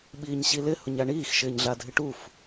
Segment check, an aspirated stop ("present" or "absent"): absent